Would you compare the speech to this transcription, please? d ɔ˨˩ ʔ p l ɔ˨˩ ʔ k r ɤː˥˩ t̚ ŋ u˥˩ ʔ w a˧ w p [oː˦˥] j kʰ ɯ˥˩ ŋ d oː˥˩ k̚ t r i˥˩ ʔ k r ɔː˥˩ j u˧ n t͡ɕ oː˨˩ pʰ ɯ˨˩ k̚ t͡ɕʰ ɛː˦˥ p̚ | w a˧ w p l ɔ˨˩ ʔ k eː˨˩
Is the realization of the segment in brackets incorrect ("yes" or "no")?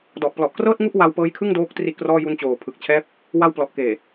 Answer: yes